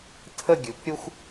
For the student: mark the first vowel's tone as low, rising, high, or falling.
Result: falling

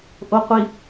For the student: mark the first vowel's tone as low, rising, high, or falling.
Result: low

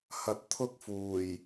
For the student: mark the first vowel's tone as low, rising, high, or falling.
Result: low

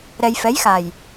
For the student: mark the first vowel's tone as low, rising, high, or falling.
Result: low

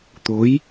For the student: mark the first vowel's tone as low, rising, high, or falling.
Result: rising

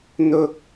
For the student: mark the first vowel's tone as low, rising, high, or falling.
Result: high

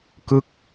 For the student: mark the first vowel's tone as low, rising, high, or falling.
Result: falling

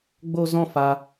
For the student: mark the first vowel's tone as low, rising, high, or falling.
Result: high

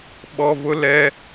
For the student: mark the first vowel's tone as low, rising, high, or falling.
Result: low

